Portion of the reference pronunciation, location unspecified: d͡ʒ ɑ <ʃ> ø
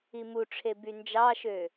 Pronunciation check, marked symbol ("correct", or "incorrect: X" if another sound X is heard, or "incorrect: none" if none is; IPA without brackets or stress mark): correct